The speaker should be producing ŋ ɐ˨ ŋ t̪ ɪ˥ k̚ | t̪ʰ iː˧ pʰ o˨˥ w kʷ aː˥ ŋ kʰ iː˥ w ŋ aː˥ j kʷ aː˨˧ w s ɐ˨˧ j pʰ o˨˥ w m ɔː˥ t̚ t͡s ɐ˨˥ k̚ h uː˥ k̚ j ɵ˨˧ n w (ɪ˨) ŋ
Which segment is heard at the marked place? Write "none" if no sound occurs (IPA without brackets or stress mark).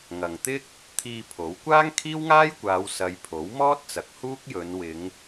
ɪ˨˧